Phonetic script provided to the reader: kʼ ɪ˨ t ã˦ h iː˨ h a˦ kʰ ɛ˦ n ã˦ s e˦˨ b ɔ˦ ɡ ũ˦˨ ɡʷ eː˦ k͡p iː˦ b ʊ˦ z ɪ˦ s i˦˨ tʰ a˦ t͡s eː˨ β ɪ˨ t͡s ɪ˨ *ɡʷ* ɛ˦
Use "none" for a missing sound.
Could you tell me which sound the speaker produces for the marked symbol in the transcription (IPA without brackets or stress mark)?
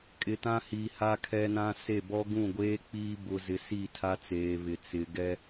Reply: ɡ